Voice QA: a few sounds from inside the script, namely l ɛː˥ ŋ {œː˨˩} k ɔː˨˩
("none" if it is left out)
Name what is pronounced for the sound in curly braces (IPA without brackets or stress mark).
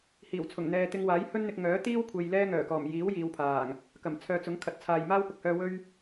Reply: œː˨˩